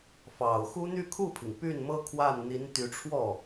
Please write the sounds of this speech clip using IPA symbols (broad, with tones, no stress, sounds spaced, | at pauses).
f ɑ˨˩ ʊ̯ x u˥ n̪ y˥˧ kʰ u˥˩ pʰ i˩ ŋ p y˥˩ n m ɤ˥ kʰ w a˥˩ n n̪ i˧˥ n t̪ y˧˥ ʈ͡ʂʰ w ɔ˥˩